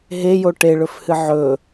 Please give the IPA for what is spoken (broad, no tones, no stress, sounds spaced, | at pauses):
ɦ e j o ʈ e ɭ ɵ f h ɨ ʕ ɵ